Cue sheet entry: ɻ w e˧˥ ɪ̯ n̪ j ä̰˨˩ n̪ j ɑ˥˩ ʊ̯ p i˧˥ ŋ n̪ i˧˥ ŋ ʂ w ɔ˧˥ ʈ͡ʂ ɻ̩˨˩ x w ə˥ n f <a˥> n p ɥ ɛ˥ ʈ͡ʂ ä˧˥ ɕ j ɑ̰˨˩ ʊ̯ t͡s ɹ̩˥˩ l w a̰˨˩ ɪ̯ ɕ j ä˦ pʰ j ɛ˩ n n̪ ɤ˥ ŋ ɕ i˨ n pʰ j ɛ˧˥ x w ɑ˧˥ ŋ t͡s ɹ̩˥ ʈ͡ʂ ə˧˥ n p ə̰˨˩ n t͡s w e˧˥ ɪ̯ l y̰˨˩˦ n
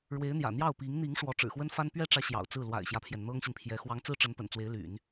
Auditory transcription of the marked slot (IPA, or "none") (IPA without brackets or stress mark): a˥